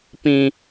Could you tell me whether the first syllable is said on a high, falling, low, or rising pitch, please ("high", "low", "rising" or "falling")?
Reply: high